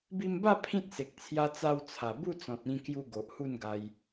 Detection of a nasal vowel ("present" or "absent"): present